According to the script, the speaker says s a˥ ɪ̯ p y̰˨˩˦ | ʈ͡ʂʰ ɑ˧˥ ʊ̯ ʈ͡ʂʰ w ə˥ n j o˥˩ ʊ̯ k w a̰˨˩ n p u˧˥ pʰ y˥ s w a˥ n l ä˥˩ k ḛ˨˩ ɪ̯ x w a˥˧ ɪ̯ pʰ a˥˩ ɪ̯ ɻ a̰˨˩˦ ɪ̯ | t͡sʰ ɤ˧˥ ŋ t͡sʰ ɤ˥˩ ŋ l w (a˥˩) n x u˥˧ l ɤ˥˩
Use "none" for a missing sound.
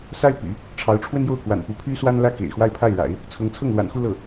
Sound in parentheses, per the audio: a̰˨˩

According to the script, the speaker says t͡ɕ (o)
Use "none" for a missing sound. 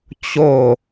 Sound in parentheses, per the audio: o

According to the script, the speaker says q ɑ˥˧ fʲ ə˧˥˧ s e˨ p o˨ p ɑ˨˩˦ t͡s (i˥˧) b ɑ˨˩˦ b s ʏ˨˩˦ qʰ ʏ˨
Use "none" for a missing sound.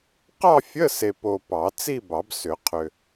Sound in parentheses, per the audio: i˥˧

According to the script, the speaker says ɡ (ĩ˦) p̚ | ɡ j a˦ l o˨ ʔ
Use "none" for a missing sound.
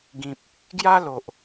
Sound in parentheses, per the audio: ĩ˨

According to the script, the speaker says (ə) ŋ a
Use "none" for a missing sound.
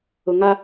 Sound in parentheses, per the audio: ʊ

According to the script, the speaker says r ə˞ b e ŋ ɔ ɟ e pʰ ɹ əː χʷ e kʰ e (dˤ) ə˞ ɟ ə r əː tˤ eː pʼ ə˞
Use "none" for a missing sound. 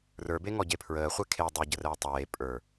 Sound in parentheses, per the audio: dˤ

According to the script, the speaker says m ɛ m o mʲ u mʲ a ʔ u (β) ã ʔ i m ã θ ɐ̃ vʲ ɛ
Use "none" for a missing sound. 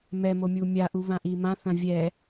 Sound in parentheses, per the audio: β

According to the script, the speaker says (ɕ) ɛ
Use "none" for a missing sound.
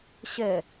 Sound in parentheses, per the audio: ɕ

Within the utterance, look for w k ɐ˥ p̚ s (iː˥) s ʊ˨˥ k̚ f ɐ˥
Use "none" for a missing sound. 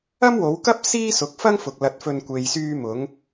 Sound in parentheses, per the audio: iː˥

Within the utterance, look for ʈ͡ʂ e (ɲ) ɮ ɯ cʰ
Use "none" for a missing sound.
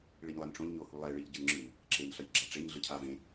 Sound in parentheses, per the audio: ɲ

